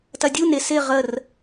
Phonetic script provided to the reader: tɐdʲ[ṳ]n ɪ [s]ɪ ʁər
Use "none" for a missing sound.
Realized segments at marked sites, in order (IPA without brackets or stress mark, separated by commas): u, s